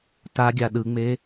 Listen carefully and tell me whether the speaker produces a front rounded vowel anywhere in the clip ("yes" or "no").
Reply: no